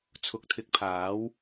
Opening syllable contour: rising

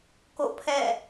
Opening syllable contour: falling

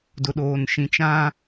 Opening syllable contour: low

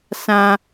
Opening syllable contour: low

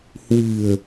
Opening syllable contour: low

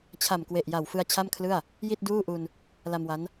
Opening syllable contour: low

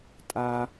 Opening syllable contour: high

